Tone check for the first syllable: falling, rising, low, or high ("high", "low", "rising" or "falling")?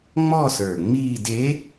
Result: falling